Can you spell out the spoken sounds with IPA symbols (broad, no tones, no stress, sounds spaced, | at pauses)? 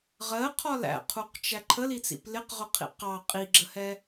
ʁ ɜ qʰ ɒ l æ̰ qʰ u q t͡ʃ æ ǃʰ ə l i t͡s ḭ p l ɪ q ʁ ʊ qʰ ḭ q ɑ qʼ i ɡ͡ǁ ə h ɛ